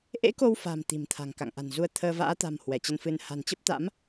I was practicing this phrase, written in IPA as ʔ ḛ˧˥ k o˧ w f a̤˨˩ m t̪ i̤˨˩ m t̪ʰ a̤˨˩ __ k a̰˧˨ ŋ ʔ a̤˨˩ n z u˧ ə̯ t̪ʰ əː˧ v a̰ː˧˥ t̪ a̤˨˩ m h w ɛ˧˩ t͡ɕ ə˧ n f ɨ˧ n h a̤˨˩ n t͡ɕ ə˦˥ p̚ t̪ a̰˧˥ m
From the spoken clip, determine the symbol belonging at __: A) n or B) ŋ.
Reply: B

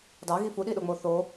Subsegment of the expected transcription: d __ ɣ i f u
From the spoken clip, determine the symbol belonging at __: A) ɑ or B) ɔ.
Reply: A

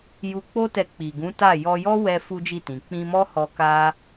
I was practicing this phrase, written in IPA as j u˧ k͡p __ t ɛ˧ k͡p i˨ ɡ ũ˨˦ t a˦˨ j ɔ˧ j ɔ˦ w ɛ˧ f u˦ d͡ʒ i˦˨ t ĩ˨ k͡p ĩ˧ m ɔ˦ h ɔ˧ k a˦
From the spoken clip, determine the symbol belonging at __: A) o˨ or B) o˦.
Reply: B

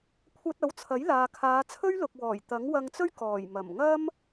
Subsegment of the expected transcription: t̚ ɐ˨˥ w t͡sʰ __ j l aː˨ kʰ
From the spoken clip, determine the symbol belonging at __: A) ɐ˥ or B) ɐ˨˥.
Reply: B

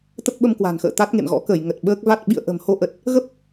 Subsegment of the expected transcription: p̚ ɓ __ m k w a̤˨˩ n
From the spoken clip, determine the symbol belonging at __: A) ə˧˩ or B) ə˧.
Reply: B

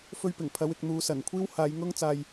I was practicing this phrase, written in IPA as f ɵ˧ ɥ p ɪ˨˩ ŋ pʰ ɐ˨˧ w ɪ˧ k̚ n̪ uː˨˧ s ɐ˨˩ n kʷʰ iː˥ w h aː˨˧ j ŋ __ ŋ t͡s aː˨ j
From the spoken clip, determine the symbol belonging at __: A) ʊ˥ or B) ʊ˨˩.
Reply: A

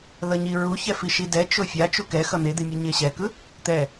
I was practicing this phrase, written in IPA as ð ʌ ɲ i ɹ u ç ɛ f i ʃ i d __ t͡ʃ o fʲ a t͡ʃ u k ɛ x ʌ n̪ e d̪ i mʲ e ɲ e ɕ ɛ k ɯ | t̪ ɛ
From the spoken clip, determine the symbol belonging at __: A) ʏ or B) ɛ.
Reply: B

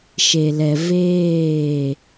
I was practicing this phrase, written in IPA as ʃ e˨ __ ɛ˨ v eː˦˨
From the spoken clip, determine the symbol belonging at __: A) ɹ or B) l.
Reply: B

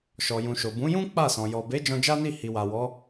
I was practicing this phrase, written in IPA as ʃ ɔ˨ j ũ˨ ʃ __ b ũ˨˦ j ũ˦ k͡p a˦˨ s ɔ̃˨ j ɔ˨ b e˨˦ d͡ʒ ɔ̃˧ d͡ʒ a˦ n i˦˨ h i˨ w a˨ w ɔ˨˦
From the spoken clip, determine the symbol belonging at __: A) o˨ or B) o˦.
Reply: A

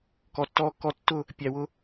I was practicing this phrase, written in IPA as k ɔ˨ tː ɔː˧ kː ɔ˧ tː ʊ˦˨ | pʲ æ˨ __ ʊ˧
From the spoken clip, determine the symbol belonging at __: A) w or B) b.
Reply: A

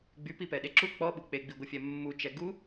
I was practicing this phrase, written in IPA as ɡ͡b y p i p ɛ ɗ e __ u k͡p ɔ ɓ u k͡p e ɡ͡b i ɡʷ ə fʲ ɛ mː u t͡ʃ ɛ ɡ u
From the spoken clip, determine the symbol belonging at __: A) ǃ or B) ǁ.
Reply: B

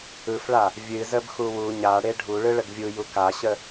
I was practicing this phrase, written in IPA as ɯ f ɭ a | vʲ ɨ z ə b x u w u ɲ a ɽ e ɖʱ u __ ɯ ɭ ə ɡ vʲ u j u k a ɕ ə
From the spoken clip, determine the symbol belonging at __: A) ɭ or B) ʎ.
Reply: A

